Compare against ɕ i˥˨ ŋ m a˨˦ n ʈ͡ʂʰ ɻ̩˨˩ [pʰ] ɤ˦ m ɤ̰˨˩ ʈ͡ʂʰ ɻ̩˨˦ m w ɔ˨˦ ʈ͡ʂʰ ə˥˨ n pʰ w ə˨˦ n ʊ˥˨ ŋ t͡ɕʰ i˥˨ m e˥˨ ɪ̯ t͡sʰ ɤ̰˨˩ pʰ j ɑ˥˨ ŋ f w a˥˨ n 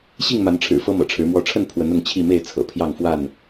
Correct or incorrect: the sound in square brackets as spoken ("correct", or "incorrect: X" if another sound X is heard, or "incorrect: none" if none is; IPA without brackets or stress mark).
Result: incorrect: f